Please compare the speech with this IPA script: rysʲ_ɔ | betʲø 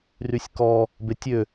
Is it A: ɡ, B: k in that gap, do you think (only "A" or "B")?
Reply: B